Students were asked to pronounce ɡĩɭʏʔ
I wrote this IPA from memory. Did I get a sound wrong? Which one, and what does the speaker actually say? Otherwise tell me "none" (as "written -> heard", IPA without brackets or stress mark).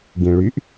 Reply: ʏ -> y